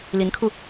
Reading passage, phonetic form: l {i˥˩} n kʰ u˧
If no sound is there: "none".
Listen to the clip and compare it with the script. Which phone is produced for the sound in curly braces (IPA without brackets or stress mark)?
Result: i˧˥